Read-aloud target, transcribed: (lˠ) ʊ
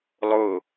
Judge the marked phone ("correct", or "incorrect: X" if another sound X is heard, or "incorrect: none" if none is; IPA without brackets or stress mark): correct